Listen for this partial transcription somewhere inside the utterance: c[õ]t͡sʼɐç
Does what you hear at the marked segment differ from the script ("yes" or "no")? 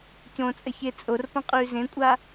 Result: no